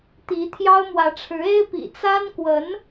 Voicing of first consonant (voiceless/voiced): voiceless